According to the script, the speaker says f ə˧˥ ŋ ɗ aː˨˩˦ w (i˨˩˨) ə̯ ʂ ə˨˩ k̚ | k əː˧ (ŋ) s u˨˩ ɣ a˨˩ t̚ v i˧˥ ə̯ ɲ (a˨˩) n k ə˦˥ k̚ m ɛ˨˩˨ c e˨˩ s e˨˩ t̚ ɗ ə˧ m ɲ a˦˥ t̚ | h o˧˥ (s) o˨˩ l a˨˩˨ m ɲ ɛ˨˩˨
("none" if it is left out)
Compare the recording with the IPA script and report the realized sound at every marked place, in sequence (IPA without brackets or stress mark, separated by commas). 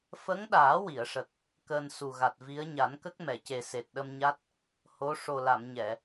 i˨˩˨, n, a˨˩˦, ʂ